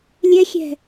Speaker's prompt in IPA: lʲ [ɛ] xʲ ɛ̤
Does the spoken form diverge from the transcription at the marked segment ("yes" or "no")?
no